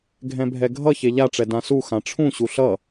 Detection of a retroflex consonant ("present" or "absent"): present